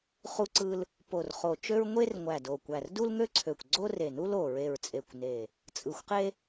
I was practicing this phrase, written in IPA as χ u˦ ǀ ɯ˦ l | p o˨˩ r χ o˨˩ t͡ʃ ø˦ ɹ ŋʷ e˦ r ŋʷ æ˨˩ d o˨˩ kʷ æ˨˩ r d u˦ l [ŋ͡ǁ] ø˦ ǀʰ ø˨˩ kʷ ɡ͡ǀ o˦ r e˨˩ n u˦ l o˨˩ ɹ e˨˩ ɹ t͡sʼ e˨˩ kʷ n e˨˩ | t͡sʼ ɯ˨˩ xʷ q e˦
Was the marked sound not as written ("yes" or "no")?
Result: yes